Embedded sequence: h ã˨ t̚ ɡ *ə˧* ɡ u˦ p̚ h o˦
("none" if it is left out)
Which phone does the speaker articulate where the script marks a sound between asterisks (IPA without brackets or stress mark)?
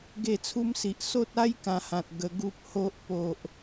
ə˧